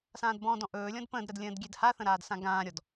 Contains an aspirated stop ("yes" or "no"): no